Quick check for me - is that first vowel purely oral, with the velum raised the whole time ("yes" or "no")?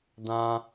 no